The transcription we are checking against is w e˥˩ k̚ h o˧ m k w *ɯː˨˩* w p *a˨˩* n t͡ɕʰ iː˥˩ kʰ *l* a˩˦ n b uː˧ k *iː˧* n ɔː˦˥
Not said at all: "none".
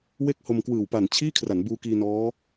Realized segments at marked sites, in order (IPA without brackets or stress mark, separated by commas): ɯː˨˩, a˨˩, r, iː˧